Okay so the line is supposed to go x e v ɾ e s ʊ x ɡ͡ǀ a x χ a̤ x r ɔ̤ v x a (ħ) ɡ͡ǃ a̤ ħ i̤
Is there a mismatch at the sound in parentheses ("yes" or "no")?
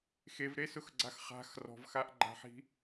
yes